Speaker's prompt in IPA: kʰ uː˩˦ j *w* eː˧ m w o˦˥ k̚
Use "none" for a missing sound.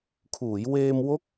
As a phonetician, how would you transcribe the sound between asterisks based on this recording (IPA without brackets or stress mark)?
w